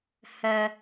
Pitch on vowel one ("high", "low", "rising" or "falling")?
high